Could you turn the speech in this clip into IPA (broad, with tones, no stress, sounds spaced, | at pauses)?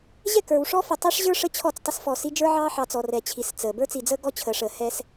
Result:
ʑ ɛ˦˨ k ə˞˨ w ʂ ɔ˦ f ə˨ tˤ ɛ˦ ʂ ʑ ə˞˦ ʂ ə˦ t͡ɕʰ ɔ˦˨ t͡s tˤ ə˦ s f ɔ˨ s i˦ d͡ʒ ə˞˦ ʕ ɑː˦ ħ ɑ˨ t͡s ɔ˨ r ɛ˨ t͡ɕʰ i˨ s t͡s əː˨ b ə˞˦ t͡s i˨ d͡z əː˦ ɡ ɔ˦ t͡ɕʰ əː˨ ʂ əː˨ h ɛ˦ s